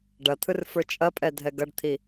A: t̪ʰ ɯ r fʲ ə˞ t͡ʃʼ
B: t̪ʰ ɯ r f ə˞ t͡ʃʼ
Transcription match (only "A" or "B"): B